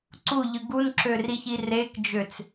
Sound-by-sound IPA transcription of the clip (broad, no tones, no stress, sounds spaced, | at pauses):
ǀ u ʎ ɯ ɡ u n ǁ ø r i ç i r e k d͡ʒ ø t͡s